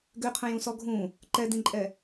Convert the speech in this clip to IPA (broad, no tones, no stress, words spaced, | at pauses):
ɡøqʰə̃jũsɔ ɡʱũ | ǃɛdĩǃʼɛ